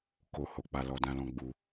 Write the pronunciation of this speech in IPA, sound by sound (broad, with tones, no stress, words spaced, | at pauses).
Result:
ko˨ ho˨k͡pa˨ lɔ˨ dã˨lɔ̃˨ ɡ͡bu˧